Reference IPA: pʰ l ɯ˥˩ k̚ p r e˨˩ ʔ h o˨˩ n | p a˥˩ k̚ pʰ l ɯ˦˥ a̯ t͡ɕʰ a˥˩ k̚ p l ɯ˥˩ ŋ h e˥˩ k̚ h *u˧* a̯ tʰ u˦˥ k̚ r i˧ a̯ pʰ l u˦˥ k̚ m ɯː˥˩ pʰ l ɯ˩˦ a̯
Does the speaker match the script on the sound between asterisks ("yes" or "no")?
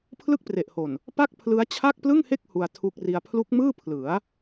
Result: yes